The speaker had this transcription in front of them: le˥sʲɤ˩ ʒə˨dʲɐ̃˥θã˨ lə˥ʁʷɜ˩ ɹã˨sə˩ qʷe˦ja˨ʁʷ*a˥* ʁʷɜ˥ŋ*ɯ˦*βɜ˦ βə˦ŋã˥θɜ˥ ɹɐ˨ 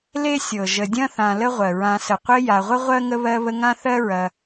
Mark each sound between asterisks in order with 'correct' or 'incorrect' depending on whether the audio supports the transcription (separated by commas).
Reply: incorrect, incorrect